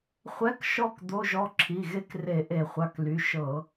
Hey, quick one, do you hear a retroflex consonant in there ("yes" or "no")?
no